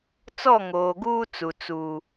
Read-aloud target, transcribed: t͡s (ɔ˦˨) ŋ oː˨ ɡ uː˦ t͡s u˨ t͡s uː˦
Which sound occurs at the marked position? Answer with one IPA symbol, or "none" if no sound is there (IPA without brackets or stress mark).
ɔ˦˨